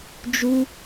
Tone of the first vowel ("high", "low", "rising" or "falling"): high